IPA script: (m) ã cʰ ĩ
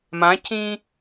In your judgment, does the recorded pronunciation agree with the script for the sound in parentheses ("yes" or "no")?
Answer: yes